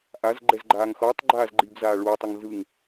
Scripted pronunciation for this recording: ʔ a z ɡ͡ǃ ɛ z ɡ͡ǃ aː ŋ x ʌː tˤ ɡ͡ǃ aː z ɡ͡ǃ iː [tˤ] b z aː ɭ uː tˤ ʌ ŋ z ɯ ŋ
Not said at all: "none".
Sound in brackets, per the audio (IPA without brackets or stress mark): none